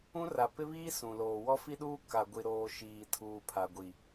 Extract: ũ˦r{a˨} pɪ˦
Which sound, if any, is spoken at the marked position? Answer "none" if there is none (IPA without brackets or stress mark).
a˨